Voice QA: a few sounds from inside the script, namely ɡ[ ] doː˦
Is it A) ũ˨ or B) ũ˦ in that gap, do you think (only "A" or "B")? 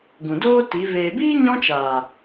A